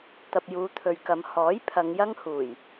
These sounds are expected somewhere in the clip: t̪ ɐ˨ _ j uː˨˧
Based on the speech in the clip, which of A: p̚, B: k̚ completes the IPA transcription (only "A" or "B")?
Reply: A